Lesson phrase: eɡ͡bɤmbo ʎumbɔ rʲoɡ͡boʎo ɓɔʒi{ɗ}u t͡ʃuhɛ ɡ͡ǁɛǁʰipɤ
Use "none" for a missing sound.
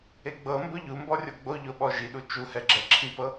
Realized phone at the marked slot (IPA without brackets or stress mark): ɗ